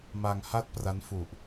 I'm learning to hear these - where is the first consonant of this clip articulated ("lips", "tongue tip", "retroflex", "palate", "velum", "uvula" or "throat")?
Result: lips